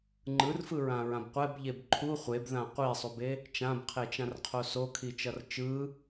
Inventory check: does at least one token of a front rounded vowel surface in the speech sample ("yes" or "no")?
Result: no